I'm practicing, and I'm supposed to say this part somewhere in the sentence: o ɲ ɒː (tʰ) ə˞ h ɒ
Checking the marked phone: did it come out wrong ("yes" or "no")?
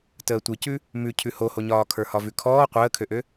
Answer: yes